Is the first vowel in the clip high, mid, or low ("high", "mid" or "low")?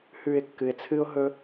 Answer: high